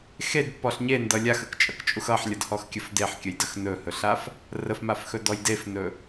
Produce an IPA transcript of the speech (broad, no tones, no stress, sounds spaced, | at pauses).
x e d pː ɔ ɬ ɲ e n d ʌ lʲ a x ə k t͡ʃʼ ʌ k t͡ʃʼ u x ʌ ħ lʲ ʌ d h ɔ x kʲ ə f d e ħ kʲ ə j d ə x n ɵ h ɵ ɬ a f | r ə f m a f x ɵ d ɔ j d e f n ɵ